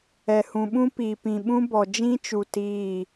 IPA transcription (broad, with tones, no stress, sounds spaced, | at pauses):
ɛ˨ h ũ˨ ɓ ũ˦ p i˨ p ĩ˨ ɓ ũ˦ b ɔ˨ d͡ʒ ĩ˦ t͡ʃ u˨ t i˦˨